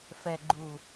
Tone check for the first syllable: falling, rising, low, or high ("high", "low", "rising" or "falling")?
low